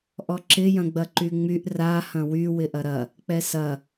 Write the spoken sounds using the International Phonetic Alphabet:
ʔ ɔ ǁ ɪ j ɐ̃ ɡ͡b ɐ ǃ y ŋ͡m y ʔ r a h ɐ̃ w y w ɪ ʔ ɐ ɾ ɐ | k͡p ɛ s ɐ

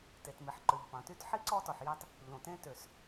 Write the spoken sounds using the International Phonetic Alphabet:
t e˩ t m i˩ ħ ǃ ø˩ ʎ p ɑ̃˩ t y˥ t ħ i˥ ǀ ɔ˥ t ɔ˩ ħ j ɑ˥ t | ʎ õ˩ t ẽ˥ t ø˩ s

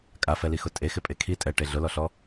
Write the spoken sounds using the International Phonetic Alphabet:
kʼ a f ɛ l i x ʊ tʼ e x ɪ pʼ e kʰ i tʼ ɛ ʈ e ɮ ʊ l ɔ ɬ ɔ

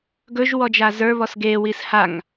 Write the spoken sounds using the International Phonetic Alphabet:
ɡ ɵ ʒ w ɔ d͡ʒ a z ə˞ β ɔ s ɡ e w i s h a ŋ

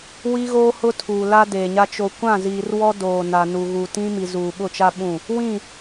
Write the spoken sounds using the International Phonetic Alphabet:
w i˦ ɣ oː˦ h ʊ˦ tʰ uː˨ l a˦ d eː˨ ɲ a˦ t͡ʃ o˨ kʷ ã˦˨ z iː˨ r w ɔ˦ d oː˨ n a˨ n u˨ ɣ u˨ t ĩ˦ m i˨ z uː˨ ɓ ʊ˦˨ t͡ʃ a˦ ɓ ũ˦˨ | w ĩ˦˨

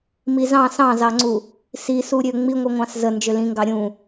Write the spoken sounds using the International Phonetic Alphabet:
m i z ɑ̃ s ɑ̃ z ɑ ŋ͡ǀ u | s i s u ɾʲ ø ŋ͡m i ŋʷ ɯ ŋʷ ɑ̃ s z ə n d͡ʒ ø l ĩ ŋ ɡ ɑ ɾʲ ũ

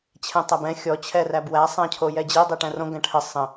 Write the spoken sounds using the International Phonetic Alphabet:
t͡ɕʰ ɛ̃ tˤ æ b ɛ̃ xʲ ɔ t͡ɕʰ ɛ r æ b w æ sˤ æ̃ cʰ o j ɛ d͡ʑ i dˤ i ʈ æ̃ r õ ɡ æ̃ ʈʰ ə sˤ ə̃

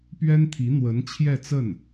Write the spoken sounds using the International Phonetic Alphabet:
p ɥ ɛ˥ n t̪ʰ i˧˥ n̪ w ə˧˥ n t͡ɕʰ j ɛ˥˧ t͡s ə˥˩ n

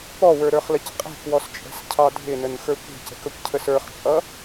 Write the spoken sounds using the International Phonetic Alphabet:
p ɔ w ə˞ ɾ ə˞ χ l ə c qʼ ɛ̤ k w ɔ s t͡ʃʼ ɛ̤ s cʰ ɑ dʱ ɪ n ə n x ə˞ kʷ i̤ c ə̤ k ə kʷ cʰ ə s ə˞ χ t͡ʃʼ ʌ

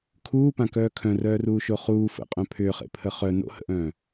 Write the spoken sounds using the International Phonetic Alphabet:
kʰ uː p ã k œː kʰ œ̃ r œː r uː ʃ o χ uː f ə̰ qʼ œ̃ pʰ ʏː χ ḛ pʰ ə χ œ n o̰ h ə̰ ʔ œ̃ː

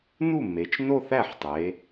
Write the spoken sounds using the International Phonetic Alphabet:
n u˥˩ m e˩˧ t͡ʃ n o˥˧ θ æ˥˩ ħ tˤ e˩˧

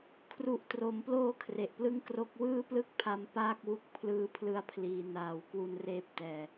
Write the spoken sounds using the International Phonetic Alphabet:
kʰ r u˨˩ ʔ t r o˩˦ m p l oː˧ kʰ r e˨˩ ʔ p l ɯ˥˩ ŋ k r o˦˥ k̚ w ɯː˥˩ p l ɯ˥˩ k̚ pʰ a˧ m p aː˥˩ k̚ w u˦˥ k̚ pʰ l ɯː˦˥ pʰ l ɯ˧ a̯ pʰ l iː˩˦ n aː˨˩ w k w u˧ n r eː˦˥ p̚ t ɛː˨˩

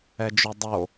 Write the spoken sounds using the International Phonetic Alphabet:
ɛ d͡ʒ ø dˤ o

